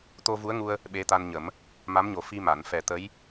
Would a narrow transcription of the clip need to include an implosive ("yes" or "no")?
yes